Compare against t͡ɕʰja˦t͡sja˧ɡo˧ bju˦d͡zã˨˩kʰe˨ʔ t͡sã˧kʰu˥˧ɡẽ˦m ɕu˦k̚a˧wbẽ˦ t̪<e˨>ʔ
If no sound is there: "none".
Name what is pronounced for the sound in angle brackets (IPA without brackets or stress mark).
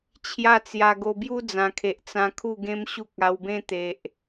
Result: e˨